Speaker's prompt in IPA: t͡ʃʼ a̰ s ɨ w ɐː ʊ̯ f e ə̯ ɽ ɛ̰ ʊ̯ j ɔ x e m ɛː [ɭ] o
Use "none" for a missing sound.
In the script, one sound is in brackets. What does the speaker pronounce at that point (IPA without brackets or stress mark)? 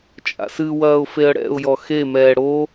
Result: ɽ